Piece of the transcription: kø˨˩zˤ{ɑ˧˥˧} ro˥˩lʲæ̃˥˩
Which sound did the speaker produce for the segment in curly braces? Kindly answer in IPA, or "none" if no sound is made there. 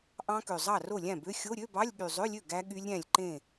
ɑ˥˩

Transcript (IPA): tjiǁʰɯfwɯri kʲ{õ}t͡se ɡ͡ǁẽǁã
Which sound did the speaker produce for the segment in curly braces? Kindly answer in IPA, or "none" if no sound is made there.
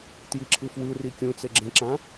ũ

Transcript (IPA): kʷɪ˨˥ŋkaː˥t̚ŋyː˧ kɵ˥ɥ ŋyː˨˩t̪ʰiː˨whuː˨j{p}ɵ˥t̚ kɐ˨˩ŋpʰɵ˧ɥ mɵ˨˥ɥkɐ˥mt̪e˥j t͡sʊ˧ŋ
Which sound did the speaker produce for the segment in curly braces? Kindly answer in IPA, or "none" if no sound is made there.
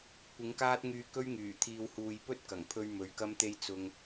p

